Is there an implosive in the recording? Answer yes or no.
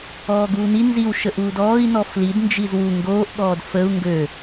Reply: yes